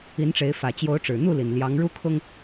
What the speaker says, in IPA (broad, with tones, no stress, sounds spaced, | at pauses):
i˨˦ n ʈ͡ʂ e˨˦ ɪ̯ f ä˨˩ t͡ɕ j o˨˦ ʊ̯ ʈ͡ʂ ɻ̩˨˩ n̪ u˥˨ l i˨˩ n l j ɑ˨˦ ŋ ɻ u˦ kʰ ʊ˦ ŋ